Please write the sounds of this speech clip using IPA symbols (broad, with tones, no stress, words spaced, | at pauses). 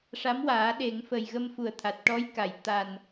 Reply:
ʂa˧˥mwaː˨˩˦ɗe˨˩˦ŋ fə˨˩jɣə˧mfu˨˩˦ə̯t̪ʰa˨˩t̚ ʈɔ˧˥jka˨˩˨j t̪a˨˩n